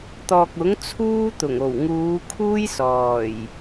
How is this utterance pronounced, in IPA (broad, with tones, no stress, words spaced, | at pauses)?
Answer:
t̪ɔː˨k̚ʊ˨˥ŋt͡sʰuː˥ t̪ʊ˨˩ŋo˨˩w ŋuː˨˧kʰuː˥j sɔː˨˩j